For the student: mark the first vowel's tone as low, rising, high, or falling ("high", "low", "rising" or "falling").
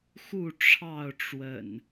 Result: falling